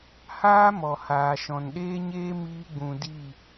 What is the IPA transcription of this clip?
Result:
h aː˦ m ɔ˨ h aː˨ ʃ ɔ̃˨ n ɗ eː˦ ɲ eː˦ m iː˦ ɡ͡b ũ˧ d i˦˨

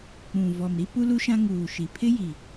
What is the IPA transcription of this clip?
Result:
k͡p ũ˨ v ɔ˨ m ɾ i˦ p u˦ l u˦ ʃ ã˦ ŋ uː˨ ʃ i˨ pʰ ɪ˦ j i˨

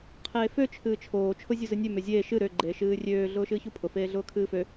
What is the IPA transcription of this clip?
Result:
qʰ eː f ø t͡ʃʰ ɨː t͡ʃʰ oː t͡ʃʰ ʊ zʲ u z ɨ nʲ ø m ø zʲ eː ʃ ɨ ɾ ø ɡ͡ǃ eː ʃ ɨː rʲ øː ɮ ʊː ʃ ɨː ç u pʰ ʊ f eː ɮ ʊː kʰ ɨː f ø

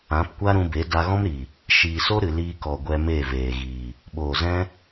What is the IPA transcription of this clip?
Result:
ã˨˦ p kʷ a˦ ɾ ũ˧ b e˨˦ d a˧ ɣ ɔ̃˦ m ɾ i˨ | ʃ iː˨ s o˦ ɾ ɨ˨ l iː˧ k ɔ˨ ɡʷ ɛ˧ m e˦˨ v eː˨ ɣ iː˨ | ɓ oː˨ z ɛ̃˦

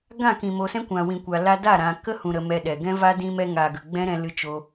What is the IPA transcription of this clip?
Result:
ɡ ã˦˨ k ĩ˨ m o˨ s ɛ̃˦ kʷ ã˨ w ĩ˨ kʷ a˨ l a˧ d a˦˨ ɾ ã˨ k ə˦ h ũ˨ ɾ ə˨ m ɛ˧ ɗ ɛ˨ ɡ ɛ̃˦ v a˦ d ĩ˧ m ɛ˧ ŋ a˨ ɡ ə˨ ɡ͡b ɛ̃˦ ɾ ɛ̃˧ l ɨ˦ t͡ʃ o˦

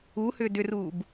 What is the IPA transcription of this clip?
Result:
u h ʏː d ʏ r uː b

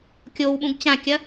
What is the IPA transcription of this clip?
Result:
kʲ o w ɓ ũ ɡ t͡ɕ ã kʲ ɐ

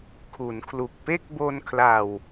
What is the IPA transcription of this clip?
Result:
kʰ u˩˦ n kʰ l u˨˩ k̚ p e˥˩ k̚ b o˧ n kʰ l a˨˩ w

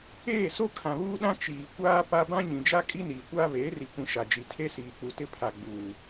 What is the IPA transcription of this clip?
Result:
eː˦˨ s o˦ kʰ ã˨ β uː˦ ɗ ã˦ t͡ʃ iː˨ kʷ aː˦ p a˦ b ã˦ ɲ ĩ˨ d͡ʒ a˦ kʼ i˦ n iː˨ kʷ aː˦ β eː˨˦ r i˨ kʷ ĩ˨ ʃ a˨ d͡ʒ i˨ tʰ e˦ s iː˨ k͡p u˨ t ɪ˦ pʰ a˨ ɡ͡b uː˨

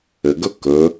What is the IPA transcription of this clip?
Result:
ɘ ɡ ɵ k ɵ

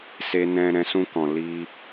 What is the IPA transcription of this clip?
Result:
s e˧ n ɛ̃˧ ɾ ɛ̃˧ s ũ˧ k ɔ̃˨ l i˧

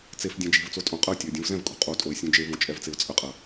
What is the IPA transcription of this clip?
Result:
t͡s e f dʲ ɛ̃ d͡ʒ e̤ v t͡s o tʼ õ qʼ ɐ ʊ̯ tʲ ɛ ʊ̯ dʲ ũ v z ɛ̃ v kʼ ṳ qʼ o tʼ o ɪ̯ sʲ ũ d͡ʒ e v õ t͡ʃʼ ɛ v t͡s e ʊ̯ t͡sʼ ə qʼ ɐ

